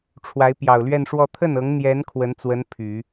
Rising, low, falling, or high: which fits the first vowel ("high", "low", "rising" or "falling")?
rising